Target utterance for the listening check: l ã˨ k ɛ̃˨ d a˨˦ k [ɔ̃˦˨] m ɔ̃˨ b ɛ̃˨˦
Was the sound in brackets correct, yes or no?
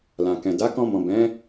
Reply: no